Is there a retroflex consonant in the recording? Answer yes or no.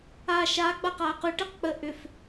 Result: yes